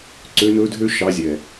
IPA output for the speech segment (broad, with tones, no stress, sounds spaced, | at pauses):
ǀ ø˧˥ n ɵ˧˥ dʱ ø˥ ʃ ɑ˧˥ zʲ ɛ˩